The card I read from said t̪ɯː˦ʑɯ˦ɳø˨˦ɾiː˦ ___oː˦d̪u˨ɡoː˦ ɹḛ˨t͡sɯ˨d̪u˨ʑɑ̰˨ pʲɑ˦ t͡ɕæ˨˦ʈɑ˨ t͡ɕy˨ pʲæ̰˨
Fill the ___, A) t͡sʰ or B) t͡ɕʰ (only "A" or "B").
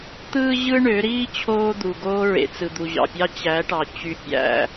B